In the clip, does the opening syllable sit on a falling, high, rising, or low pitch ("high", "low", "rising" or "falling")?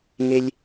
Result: high